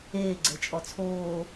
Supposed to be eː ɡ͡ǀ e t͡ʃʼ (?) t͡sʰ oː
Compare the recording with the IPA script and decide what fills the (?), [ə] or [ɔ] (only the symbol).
ɔ